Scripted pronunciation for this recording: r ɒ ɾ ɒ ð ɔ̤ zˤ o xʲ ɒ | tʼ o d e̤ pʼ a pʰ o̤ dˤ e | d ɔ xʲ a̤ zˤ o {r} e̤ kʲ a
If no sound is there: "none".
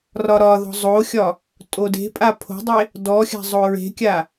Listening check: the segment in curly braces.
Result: ɹ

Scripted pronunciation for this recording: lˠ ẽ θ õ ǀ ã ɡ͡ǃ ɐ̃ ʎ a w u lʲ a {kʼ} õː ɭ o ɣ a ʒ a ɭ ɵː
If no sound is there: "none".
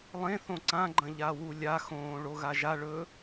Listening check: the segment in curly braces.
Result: x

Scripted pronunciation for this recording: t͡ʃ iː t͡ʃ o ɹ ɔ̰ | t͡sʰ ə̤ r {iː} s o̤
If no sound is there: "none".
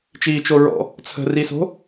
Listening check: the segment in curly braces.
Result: i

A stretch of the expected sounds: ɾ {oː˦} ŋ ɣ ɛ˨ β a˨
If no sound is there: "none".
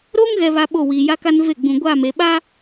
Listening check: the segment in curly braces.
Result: oː˦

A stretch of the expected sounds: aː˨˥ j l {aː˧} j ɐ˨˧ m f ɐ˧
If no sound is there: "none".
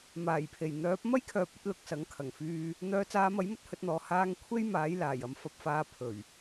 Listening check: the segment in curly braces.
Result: aː˨˩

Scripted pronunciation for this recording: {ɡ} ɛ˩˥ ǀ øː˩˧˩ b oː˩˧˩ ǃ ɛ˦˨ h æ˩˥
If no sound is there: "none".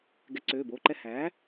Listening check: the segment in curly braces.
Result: ɡ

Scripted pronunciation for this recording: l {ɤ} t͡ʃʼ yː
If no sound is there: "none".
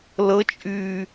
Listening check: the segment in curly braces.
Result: ɤ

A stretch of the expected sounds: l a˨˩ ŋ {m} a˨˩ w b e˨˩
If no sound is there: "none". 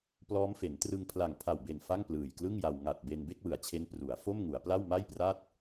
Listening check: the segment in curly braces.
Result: pʰ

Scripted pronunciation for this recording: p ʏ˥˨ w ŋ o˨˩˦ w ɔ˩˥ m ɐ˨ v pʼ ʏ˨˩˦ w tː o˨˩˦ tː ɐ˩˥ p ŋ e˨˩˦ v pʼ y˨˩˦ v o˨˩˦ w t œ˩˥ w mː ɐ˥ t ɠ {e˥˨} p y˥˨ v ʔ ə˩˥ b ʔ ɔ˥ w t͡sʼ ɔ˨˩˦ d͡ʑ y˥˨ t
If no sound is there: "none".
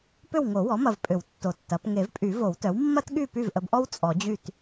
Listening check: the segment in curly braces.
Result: y˥˨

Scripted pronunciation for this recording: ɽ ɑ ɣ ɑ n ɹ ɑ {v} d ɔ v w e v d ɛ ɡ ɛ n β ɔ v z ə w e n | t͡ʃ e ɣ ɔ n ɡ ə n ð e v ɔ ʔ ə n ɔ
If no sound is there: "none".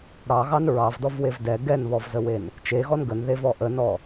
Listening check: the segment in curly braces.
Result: v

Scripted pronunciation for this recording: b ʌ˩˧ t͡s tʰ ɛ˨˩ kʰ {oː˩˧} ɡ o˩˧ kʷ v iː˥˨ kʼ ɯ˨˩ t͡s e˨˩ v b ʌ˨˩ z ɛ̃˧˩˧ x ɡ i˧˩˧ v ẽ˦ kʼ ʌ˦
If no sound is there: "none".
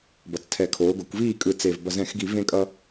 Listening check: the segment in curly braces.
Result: oː˩˧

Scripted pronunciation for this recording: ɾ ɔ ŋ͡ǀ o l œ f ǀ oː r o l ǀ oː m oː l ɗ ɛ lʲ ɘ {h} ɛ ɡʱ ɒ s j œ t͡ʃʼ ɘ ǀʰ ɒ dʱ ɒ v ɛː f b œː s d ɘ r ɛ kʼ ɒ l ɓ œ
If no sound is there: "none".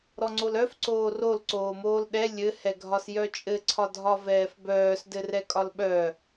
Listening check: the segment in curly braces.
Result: h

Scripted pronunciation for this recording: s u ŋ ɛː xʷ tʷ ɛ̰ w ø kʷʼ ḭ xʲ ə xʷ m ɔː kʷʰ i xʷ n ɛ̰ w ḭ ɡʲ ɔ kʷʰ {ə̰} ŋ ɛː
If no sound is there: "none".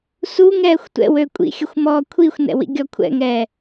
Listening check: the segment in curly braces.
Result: ɛ̰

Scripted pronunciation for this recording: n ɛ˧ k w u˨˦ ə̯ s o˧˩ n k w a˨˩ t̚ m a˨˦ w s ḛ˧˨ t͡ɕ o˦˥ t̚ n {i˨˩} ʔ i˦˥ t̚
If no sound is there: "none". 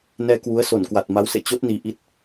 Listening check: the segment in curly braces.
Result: i˨˩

